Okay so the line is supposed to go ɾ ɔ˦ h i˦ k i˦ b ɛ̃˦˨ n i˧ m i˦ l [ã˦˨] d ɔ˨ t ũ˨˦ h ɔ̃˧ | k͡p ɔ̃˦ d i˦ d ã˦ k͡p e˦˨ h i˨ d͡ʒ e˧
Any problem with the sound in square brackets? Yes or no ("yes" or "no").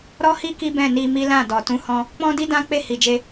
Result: no